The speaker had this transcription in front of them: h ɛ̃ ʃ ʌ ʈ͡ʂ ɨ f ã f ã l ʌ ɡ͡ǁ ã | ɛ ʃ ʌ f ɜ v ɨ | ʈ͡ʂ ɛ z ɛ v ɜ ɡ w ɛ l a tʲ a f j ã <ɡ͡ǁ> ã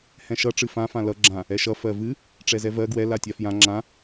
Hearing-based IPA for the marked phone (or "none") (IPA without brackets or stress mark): ŋ͡ǁ